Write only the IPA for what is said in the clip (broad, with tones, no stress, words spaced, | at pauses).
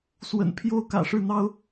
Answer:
swə̰˨˩npʰjo˥˩ʊ̯kä̰˨˩ ʂɻ̩˥˩n̪ɑ˥ʊ̯